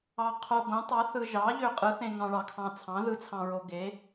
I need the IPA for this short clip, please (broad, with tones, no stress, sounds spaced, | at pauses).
ɑ˧ qʰ o˧ ɡ õ˨˥ tˤ ɑ˨˥ θ ɯ˧ ʒ ɑ˨˥ ʎ ø˧ qʼ ɯ˨˥ θ ẽ˧ ŋ ɑ̃˧ ɭ ɑ˧ kʰ ɑ̃˧ t͡sʰ ɑ̃˨˥ ð ɯ˨˥ t͡sʰ ɑ̃˧ ɹ o˧ ɡ e˨˥